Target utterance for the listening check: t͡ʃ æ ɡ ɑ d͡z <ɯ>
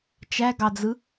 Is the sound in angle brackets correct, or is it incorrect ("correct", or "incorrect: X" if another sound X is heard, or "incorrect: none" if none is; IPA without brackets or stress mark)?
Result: correct